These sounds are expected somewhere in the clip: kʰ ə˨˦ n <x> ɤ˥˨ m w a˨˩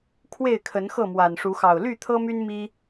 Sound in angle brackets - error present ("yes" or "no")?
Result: no